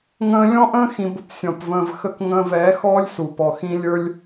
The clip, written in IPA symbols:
ŋə̃ː˧lʲɔ̃˦ʔə̃ː˦ xĩ˧bʊ˨psʲɔ̃˨pvə̃ː˧v xə˧kŋə̃ː˧vɛː˨˦xɔː˦lʲ su˨pɔ˨xĩ˦ lʲə˞˦lʲ

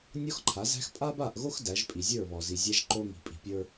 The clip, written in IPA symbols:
nʲɔ˦xǃʰa˨˦zæ̤˦x pʼa˦ba˦˨ʔɣo˦x dæ˨˦ʒpʼi˨ zʲə˞˦˨βɔ˨zi˨ zʲæ˦ʒǃo˦ ŋi̤˨pʼi̤˨pʲə˞˦

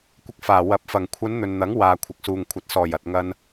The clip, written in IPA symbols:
kʷɪ˧k̚faː˨˩ wɐ˨p̚ fɐ˨˩ŋkʷʰɐ˨˧n n̪ɵ˨nn̪ɐ˨˥ŋ waː˨kʷʰɪ˨k̚suː˨ŋkʷʰɐ˨˥t̚ sɔː˨˩jɐ˨t̚ŋɐ˧n

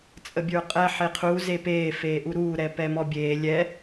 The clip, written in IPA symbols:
t͡sʼəbʲə˞qʼɛ ħeqʰu zepeː feːʔuɾuː ɾɛpɛmɔbʲeː lʲɛ

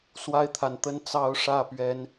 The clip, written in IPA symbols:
swa˦ɪ̯t̪ʰa˨nt̪ə˦n t͡sɑ˦ʊ̯ ʂä˥˨ pɥɛ˨˦n

